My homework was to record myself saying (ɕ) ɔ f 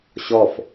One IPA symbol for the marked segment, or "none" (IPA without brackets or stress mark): ɕ